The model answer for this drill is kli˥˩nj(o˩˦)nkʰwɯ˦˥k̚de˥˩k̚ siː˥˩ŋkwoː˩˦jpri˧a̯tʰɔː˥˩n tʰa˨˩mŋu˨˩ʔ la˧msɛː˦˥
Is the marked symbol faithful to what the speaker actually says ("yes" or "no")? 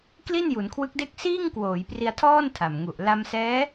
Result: no